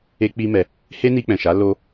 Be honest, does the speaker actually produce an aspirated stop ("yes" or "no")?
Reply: no